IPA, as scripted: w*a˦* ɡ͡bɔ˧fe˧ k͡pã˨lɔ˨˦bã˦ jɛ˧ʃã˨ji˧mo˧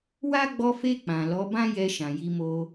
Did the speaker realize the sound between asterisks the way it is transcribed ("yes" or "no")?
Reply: yes